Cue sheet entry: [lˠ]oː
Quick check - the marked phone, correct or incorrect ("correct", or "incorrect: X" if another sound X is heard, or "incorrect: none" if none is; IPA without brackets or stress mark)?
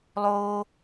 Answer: correct